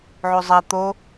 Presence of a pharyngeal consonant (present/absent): present